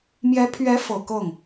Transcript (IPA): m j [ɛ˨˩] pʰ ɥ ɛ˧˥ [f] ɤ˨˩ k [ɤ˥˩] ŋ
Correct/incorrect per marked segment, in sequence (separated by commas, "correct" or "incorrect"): incorrect, correct, correct